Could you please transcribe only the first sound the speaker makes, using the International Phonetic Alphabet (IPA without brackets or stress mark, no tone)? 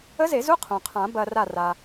ə